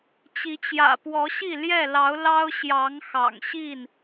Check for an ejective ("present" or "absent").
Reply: absent